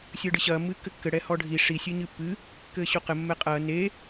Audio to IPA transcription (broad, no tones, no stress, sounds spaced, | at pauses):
sʲ ɘː ɖ ɨ ɕ ɐː mː ɨː kː ɘ kː ɘ ɽ ɛ h ɔ ɖʱ i ʂ i sʲ ɨː ɲ ɨː pː ɨː | k ɘː ɕ o q ɘ mː ɛ qʼ ɐː n e